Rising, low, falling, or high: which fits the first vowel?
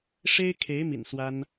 high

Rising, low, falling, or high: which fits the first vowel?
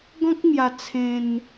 high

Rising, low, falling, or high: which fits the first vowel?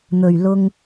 low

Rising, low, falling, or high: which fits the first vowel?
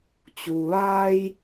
low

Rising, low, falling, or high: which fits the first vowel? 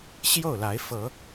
falling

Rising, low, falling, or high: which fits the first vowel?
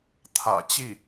low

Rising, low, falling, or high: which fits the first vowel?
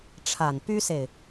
low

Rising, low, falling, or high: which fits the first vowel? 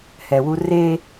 low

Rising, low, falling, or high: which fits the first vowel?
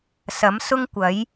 rising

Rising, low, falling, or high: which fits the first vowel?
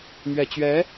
low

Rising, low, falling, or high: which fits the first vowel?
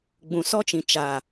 low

